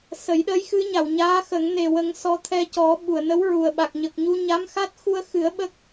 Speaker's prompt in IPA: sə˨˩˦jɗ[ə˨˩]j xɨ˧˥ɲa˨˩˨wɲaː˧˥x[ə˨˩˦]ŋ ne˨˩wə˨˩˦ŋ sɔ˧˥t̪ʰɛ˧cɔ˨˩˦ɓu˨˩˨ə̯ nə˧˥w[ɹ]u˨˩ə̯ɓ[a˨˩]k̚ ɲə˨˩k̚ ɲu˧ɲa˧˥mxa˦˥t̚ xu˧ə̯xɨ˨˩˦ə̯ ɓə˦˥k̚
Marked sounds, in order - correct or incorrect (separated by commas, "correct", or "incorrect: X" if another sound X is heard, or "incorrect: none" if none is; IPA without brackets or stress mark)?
incorrect: ə˧˥, correct, correct, correct